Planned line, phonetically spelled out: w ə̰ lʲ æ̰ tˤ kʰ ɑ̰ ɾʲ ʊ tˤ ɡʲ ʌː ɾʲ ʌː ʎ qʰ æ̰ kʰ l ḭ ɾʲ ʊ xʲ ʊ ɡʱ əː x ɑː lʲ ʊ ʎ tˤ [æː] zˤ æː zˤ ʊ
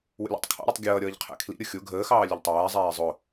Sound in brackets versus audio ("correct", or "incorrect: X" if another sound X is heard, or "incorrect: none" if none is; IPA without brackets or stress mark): correct